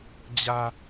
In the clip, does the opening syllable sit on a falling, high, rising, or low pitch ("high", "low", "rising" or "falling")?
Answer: low